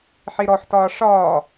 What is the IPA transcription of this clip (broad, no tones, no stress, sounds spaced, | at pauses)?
ħ i ɾ ɔ ħ t ɒː ʂ ɒː